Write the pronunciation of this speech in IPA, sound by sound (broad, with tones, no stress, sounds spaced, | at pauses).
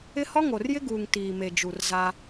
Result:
ɪ˦ h ɔ˦ ŋ o˨ r j ɪ˦ ɡ uː˨ ŋ t iː˨ m e˨ d͡ʒ u˨ r z a˦